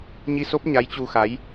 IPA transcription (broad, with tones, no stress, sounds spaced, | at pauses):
ɲ i˧ s o˦˥ p̚ ɲ a˨˦ j t͡ɕ u˧ x a˨˦ j